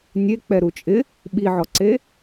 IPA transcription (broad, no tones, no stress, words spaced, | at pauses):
nʲek͡pɛ ɾut͡ʃʼɪ | ɓiʕɔǀe